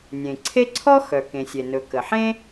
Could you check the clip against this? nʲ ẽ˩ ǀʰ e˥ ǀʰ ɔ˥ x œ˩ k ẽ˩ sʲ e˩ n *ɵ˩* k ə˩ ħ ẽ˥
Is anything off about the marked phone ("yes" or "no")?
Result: no